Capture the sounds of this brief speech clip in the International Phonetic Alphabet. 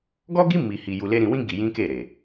ɡ ɔ˦ ɡ i˦ m i˧ h i˧ j u˧ l e˦ ɾ ĩ˧ w ĩ˦ ɡ i˧ j ĩ˦ k e˦˨ ɾ e˨

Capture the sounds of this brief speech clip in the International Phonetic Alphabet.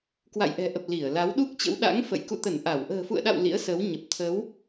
k w a̰˧˨ j ʔ ɛ̤˨˩ ʔ ə˨˩ p̚ l i˧˩ ə̯ l a˨˦ w ɗ u˦˥ k̚ t͡ɕ ə̰˧˥ w ɗ a̰˧˥ ŋ f ə̰˧˨ j k ṵ˧˨ t̪ ə˧˩ n ʔ a˧˩ w ʔ ə̤ː˨˩ f ṵ˧˨ ə̯ ɗ a̰˧˨ w l ḭ˧˥ ə̯ s ə˨˦ w ɲ ə˨˩ p̚ t̪ʰ ə˨˦ w

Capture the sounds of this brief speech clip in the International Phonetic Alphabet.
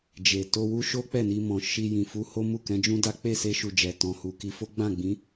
d͡ʒ e˨ t o˧ w u˦ ʃ o˦ k͡p ɛ˦˨ n i˧ m ɔ̃˨ ʃ i˧ j ĩ˨ f u˧ h o˦ m u˦˨ k ɛ̃˨˦ d͡ʒ ũ˦ d a˦ k͡p e˦˨ s e˧ ʃ u˨ d͡ʒ ɛ˨ t ɔ̃˨ h u˨ k i˧ f o˦ ɡ͡b ã˦˨ ɡ͡b ĩ˨˦

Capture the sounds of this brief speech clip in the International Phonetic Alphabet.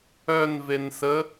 œ n v e n s ə

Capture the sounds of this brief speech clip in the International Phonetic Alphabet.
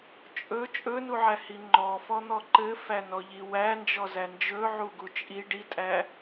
t͡ʃʼ ɵ t͡ʃʼ ɵ n u ʕ æ h i ŋ͡ǃ ɔ f ɔ n̪ ɔ ǃ ɘ f æ n ɔ ʎ i w æ n d͡ʒ ɔ z æ n d͡ʒ ɵ ʕ u ɡ u t͡ʃʼ i ɖ i tʼ æ

